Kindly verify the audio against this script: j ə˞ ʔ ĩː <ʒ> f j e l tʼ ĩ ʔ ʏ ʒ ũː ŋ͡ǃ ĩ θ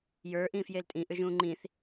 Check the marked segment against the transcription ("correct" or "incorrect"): incorrect